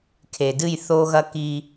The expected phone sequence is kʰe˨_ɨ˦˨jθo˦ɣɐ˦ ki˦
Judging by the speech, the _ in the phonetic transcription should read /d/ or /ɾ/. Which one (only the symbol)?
d